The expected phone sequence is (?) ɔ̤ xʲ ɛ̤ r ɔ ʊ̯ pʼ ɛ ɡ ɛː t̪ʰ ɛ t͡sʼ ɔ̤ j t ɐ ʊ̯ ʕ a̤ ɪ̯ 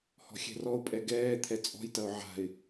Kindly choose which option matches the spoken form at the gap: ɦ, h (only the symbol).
h